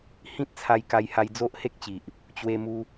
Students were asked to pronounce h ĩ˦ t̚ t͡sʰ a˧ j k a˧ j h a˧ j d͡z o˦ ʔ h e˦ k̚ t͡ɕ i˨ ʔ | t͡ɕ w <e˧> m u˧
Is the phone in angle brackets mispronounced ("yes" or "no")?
no